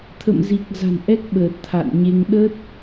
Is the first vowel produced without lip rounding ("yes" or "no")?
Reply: yes